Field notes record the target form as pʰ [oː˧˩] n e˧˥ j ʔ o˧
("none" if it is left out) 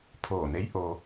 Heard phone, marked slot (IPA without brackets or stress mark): oː˧˩